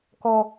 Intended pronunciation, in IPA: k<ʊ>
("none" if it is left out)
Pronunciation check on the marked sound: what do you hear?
ɔ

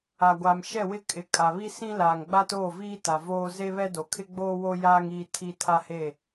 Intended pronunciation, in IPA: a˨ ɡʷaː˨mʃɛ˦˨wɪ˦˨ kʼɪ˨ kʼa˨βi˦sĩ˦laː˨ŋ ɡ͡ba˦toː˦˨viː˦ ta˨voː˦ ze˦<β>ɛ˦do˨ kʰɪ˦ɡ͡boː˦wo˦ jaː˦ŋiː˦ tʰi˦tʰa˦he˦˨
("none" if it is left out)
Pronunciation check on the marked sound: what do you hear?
β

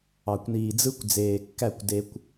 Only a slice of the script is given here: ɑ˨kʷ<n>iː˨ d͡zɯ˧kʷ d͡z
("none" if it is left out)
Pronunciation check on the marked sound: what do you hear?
n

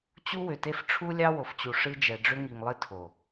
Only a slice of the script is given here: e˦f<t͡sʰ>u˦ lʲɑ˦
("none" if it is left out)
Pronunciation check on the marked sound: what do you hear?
ʈ͡ʂʰ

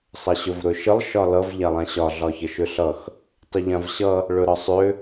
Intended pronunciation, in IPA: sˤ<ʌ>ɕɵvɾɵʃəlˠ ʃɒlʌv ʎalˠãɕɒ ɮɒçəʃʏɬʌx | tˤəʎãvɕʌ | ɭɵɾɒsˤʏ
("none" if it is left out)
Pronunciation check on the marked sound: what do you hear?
ʌ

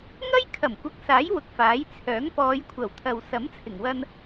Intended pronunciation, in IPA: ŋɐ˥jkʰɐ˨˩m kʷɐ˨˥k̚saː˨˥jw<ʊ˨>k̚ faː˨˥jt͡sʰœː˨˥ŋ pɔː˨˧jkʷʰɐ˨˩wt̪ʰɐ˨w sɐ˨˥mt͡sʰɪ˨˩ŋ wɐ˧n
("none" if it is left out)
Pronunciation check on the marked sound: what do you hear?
ʊ˨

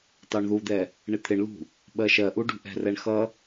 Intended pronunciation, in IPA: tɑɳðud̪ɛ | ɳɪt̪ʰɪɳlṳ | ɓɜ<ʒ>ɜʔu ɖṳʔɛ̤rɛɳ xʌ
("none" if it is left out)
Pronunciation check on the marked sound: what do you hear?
ʃ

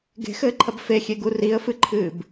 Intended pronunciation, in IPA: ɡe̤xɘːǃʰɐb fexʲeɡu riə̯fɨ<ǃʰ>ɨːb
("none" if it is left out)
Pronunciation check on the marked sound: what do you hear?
ǃʰ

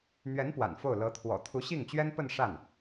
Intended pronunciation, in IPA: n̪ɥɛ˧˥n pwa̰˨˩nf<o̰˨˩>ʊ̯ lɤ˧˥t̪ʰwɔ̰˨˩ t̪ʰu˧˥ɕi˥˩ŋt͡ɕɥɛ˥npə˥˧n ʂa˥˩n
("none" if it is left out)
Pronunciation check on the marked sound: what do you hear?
o˥˩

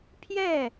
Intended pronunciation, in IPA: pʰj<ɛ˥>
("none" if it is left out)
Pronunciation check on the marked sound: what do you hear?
ɛ˥˩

